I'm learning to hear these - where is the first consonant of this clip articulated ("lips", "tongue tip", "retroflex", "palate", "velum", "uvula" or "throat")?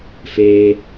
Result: lips